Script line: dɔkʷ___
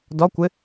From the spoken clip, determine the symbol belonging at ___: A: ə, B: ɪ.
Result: B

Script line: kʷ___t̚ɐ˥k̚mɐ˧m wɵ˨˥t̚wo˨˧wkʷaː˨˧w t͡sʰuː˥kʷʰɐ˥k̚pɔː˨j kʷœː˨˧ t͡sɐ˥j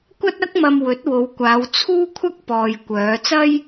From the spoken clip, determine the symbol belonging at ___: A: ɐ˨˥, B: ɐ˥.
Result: B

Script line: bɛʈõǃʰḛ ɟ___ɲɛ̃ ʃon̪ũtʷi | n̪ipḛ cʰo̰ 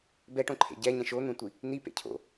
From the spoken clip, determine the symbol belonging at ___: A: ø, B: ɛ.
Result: B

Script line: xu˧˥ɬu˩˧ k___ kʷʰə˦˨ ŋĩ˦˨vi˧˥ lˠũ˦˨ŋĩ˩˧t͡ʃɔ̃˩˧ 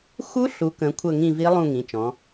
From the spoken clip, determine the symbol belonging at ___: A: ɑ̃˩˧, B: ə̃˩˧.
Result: B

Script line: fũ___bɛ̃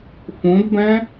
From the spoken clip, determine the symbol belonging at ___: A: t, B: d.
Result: B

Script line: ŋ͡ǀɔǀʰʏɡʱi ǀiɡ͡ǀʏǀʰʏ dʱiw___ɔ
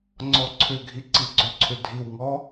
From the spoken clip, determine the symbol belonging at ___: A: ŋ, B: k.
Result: A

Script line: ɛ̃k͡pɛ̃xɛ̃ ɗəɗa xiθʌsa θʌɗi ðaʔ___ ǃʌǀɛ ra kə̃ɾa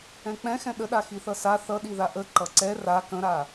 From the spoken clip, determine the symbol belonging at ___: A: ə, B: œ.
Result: A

